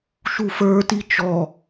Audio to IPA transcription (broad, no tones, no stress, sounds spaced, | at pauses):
ʃ u f ə˞ t i t͡ʃ ɔ